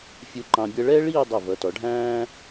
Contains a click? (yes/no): yes